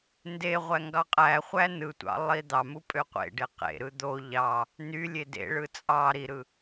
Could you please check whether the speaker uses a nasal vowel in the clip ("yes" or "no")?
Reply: no